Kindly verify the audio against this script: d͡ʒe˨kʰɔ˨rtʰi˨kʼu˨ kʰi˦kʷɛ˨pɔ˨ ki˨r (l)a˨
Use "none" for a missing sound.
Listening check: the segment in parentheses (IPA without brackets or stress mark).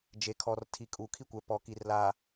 l